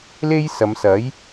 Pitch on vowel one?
high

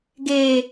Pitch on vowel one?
low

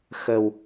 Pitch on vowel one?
low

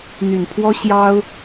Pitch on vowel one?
low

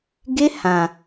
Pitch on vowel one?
high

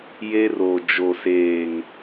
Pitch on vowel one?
high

